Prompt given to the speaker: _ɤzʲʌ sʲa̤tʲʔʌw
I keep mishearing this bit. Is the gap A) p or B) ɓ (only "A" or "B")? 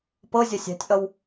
A